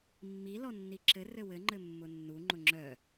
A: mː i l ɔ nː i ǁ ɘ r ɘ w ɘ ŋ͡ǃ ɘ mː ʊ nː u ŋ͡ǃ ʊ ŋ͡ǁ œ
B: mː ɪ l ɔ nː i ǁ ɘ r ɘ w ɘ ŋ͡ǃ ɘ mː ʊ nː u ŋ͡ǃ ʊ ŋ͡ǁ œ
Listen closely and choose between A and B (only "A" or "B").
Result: A